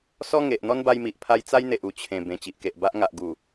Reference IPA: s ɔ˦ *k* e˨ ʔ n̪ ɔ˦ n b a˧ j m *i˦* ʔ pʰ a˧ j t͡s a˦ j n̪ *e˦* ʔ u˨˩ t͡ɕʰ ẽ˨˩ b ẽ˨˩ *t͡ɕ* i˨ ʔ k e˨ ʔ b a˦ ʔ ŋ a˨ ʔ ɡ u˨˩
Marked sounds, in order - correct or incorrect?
incorrect, incorrect, incorrect, correct

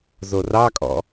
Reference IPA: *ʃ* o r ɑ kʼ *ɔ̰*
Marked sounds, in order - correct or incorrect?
incorrect, correct

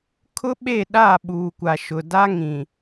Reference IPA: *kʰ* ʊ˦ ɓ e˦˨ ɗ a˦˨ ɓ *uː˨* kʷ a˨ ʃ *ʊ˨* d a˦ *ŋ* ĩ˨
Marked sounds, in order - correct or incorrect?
correct, correct, correct, correct

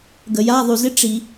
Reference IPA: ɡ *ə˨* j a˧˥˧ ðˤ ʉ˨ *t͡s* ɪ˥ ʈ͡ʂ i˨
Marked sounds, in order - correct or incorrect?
correct, incorrect

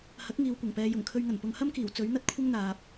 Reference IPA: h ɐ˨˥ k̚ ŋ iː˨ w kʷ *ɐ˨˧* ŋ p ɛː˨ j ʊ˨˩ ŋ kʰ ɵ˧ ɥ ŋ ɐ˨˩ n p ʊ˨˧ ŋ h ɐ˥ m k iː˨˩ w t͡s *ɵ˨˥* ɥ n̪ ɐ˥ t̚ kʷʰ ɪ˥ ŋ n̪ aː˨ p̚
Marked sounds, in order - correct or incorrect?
incorrect, correct

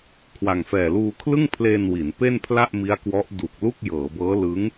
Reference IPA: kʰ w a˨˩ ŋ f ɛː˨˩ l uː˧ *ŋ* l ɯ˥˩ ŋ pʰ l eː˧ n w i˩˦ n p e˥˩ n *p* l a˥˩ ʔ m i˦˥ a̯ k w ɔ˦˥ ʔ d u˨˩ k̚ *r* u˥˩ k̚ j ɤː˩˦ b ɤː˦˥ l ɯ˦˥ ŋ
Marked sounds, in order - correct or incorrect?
incorrect, incorrect, incorrect

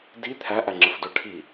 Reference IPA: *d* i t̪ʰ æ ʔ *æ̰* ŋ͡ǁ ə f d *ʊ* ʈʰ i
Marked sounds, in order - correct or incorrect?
correct, incorrect, correct

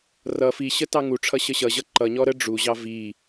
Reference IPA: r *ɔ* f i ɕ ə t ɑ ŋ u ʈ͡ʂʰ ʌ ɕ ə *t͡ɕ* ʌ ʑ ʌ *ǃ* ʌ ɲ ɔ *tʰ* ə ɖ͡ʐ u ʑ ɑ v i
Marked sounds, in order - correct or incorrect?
incorrect, incorrect, correct, incorrect

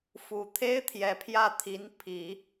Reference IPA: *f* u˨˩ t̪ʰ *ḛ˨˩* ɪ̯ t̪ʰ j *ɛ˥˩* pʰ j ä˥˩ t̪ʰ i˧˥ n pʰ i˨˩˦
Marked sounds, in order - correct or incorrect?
correct, incorrect, incorrect

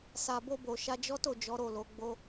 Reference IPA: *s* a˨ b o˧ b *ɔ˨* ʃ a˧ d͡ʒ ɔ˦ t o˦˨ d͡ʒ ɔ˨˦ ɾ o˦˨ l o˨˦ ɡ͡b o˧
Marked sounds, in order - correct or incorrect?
correct, incorrect

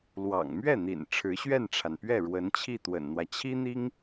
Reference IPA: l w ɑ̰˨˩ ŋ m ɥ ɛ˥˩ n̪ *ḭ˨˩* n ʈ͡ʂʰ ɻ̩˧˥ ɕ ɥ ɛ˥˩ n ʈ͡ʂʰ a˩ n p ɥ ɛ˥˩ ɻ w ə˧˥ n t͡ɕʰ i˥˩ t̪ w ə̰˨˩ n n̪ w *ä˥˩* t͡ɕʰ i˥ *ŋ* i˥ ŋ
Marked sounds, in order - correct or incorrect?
correct, incorrect, incorrect

